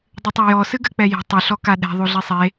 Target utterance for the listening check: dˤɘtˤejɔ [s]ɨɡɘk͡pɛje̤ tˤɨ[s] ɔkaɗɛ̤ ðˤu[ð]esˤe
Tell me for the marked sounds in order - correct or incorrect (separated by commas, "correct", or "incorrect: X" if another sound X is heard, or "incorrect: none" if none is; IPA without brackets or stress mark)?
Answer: correct, incorrect: ɬ, incorrect: ɮ